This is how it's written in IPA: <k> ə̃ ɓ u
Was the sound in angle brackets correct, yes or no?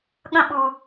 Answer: no